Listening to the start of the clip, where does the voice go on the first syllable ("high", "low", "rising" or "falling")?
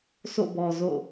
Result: falling